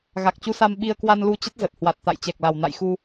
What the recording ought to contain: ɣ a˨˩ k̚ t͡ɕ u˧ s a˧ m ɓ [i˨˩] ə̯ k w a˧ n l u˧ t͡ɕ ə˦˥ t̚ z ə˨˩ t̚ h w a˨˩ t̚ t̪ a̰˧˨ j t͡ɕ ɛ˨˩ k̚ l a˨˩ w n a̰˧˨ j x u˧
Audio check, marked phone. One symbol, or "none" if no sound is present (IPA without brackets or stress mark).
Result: i˧